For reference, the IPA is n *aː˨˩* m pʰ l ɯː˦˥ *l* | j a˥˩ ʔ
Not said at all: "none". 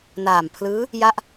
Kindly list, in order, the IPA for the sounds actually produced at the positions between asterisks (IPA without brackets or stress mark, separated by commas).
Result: aː˨˩, none